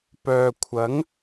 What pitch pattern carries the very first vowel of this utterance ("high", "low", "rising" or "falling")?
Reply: low